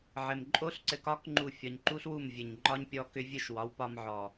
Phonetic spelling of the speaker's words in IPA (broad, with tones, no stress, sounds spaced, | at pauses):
ʕ ɘ˨ m ǃʼ o˦ ɬ ǀ ɘ˧ k ɒ˦ k ŋ͡ǃ u˦˨ fʲ ɒ˧ ɲ ǃ u˦ ɬ w u˦˨ m vʲ ɘ˨ ɲ ŋ͡ǃ ɒ˦ ɲ pʲ ɔ˧ k ʏ˧ vʲ ɘ˦˨ ʃ w ɒ˨˦ w p ɒ˧ m ʕ ɔ˨